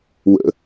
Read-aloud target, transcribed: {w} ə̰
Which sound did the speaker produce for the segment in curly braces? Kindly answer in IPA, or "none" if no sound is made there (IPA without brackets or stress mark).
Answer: w